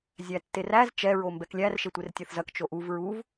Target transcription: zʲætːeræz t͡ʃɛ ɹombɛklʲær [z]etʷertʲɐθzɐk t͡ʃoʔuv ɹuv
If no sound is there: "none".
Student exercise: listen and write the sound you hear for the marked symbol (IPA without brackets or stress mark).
ʃ